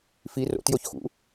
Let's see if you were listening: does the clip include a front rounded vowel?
no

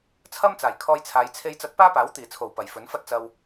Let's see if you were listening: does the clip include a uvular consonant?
no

